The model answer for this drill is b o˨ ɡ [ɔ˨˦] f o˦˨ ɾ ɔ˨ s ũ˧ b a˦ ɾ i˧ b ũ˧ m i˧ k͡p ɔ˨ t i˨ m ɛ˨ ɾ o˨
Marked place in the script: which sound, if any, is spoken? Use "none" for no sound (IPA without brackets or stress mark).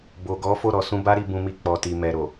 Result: ɔ˨˦